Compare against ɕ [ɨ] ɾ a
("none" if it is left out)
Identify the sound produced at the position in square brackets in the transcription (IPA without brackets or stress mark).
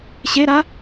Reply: e